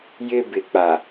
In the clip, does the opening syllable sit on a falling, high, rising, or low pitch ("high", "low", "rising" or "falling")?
high